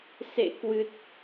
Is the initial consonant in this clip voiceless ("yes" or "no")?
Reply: yes